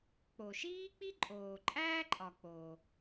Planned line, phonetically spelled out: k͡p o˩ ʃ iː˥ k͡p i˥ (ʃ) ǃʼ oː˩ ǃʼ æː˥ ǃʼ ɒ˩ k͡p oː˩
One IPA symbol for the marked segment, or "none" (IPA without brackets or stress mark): none